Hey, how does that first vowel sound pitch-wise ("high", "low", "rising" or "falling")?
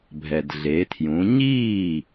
low